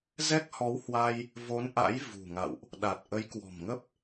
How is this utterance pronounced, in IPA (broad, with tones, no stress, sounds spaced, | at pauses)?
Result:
z ɛ˦˥ k̚ h ɔ˨˦ w h w a˧ j | v o˨˦ n ʔ a̰˧˥ j v ṳ˨˩ ŋ a̰˧˨ w ʔ | ɗ a˨˩ t̚ ʔ ə˨˦ j k w ɔ̤˨˩ m ŋ ə˦˥ p̚